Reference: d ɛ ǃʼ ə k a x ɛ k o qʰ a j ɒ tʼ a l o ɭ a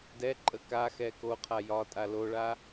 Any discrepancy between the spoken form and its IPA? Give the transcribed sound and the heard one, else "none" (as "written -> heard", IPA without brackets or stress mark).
none